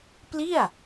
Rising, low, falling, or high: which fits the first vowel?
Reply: falling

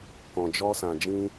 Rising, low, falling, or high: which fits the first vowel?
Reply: low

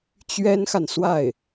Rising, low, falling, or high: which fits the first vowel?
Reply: high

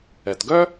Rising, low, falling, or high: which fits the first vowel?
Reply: low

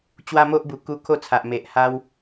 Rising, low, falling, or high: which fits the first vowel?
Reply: high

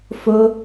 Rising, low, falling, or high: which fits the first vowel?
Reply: high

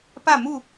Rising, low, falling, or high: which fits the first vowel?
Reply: falling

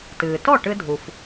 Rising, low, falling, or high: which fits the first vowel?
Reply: low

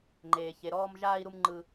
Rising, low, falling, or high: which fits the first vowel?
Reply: low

